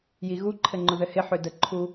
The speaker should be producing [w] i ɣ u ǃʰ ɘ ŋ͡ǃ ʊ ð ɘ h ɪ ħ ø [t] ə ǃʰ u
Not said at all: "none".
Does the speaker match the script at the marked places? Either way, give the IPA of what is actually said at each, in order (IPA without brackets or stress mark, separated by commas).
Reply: j, d